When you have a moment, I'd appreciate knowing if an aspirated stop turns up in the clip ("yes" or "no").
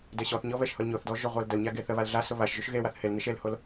no